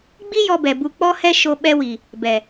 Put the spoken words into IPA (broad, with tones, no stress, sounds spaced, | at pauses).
ɡ͡b i˦ j ɔ˧ b ɛ˨ b u˧ k͡p ɔ˦ h ɛ˦ ʃ o˧ ɓ ɛ˧ w i˨ | b ɛ˨